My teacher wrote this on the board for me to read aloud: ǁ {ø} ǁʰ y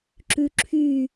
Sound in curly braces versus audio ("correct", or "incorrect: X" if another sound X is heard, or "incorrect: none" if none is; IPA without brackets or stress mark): incorrect: ʉ